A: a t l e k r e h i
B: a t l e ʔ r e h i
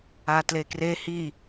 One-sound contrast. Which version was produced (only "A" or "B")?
A